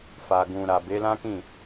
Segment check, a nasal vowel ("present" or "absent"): present